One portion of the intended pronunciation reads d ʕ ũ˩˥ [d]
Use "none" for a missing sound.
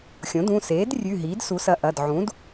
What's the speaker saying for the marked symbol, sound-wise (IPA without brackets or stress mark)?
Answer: d